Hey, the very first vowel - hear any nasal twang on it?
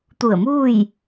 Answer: no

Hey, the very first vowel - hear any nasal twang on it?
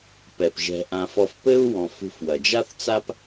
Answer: no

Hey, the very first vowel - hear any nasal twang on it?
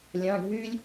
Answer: yes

